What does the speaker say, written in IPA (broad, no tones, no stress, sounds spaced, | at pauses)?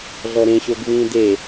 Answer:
ɮ ɔ ɾ ẽ ɕ o ɡ v ĩː d e